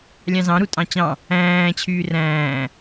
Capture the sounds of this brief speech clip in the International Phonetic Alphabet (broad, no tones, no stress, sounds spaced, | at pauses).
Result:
lʲ ɑ̃ z ɑ̃ ɾ u tʼ ɑ̃ t͡ɕ ɑ̃ | æ̃ː t͡ɕʰ yː r æ̃ː